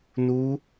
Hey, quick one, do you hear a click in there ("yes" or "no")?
no